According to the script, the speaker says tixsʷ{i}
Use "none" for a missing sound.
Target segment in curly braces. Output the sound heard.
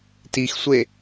e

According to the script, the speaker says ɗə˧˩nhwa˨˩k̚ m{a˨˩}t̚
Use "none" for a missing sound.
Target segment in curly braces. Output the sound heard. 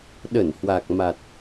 a˨˩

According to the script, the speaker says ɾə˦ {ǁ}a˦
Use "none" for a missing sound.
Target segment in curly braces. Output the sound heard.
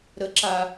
ǁ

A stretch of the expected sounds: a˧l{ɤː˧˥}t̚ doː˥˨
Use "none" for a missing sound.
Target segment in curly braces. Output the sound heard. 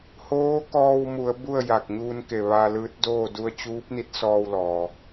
ɯː˧˥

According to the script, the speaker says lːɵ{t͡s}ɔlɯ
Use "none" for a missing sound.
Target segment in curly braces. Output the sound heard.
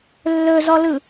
z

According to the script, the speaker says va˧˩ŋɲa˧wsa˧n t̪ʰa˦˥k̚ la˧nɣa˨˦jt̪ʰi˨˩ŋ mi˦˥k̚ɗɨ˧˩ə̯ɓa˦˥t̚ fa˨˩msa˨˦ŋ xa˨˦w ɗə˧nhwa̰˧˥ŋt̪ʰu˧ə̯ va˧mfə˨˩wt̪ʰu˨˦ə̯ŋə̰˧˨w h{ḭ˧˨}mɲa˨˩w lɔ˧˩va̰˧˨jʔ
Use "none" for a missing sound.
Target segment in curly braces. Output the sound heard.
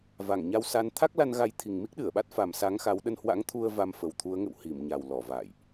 i˧˩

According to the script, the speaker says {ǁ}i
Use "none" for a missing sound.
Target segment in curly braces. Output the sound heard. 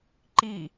ǃ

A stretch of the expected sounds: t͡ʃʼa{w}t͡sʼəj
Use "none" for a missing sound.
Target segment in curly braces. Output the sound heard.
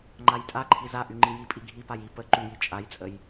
j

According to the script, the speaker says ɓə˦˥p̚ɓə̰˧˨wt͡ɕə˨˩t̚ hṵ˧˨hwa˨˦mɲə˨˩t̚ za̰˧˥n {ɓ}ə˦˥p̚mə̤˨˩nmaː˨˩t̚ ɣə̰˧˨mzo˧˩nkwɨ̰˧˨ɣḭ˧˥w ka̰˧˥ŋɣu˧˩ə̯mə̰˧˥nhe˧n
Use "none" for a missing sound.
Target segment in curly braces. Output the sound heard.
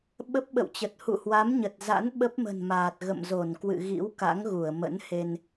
ɓ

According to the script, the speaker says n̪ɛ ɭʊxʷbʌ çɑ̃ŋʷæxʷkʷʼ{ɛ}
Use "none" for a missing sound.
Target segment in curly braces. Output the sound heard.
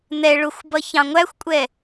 ɛ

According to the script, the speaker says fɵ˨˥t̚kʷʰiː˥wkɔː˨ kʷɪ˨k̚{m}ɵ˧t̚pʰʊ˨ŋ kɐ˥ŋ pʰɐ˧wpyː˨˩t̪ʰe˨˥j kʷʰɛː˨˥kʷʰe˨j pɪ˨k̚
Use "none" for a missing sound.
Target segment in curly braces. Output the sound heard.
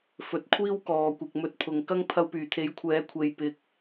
m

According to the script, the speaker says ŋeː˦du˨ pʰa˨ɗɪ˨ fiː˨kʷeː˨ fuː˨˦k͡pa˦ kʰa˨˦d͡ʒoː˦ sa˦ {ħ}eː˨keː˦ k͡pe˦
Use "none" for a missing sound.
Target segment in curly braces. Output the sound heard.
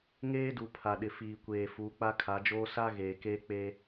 ɣ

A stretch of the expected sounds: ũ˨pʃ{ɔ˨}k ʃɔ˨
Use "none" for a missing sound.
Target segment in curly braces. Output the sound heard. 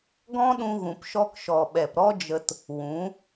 ɔ˧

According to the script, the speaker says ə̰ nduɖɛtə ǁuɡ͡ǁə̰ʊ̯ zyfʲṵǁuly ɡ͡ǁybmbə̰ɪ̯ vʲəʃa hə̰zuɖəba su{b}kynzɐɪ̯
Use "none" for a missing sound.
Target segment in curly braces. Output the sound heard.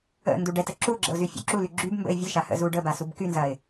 b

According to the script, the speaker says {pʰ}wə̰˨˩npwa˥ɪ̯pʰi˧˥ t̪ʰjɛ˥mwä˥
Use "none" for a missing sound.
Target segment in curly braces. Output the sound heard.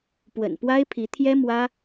p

